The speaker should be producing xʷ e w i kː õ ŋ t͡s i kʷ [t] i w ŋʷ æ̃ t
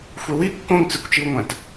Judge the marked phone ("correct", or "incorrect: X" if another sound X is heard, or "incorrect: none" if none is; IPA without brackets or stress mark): incorrect: t͡ʃ